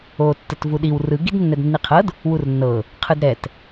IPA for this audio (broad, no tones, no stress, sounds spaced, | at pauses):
o tː ə t v u ɗ i w r ɯ ɡ i d nː ɛ d nː i qʰ ɤ d | w u r nː ɤ | qʰ ɯ d ɾ ɛ t